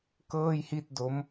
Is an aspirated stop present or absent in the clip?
absent